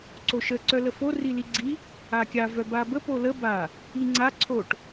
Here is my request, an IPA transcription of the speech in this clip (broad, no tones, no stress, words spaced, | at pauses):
ǀoʃə ǀœləfo riliɡ͡ǀi | akʲa vœbabə polə ba | iŋ͡ǀa ǀʰoʈ